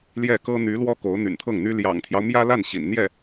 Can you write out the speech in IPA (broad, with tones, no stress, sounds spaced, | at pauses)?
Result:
l j ɛ˥˩ k ɤ˥ n̪ y˧˥ l w ɔ˥ k o˧˥ ʊ̯ n̪ y̰˨˩ n t̪ʰ ɤ˥˩ ŋ n̪ y˥ l j ɑ̰˨˩ ŋ t̪ʰ j ɑ˦ ʊ̯ m j ä˥ l a˥˩ n ɕ ḭ˨˩ n n̪ j ɛ˥˩